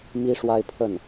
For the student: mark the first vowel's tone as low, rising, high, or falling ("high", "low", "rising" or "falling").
high